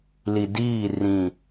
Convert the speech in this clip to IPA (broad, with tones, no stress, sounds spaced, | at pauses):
l i˨ d iː˦˨ r ĩ˦˨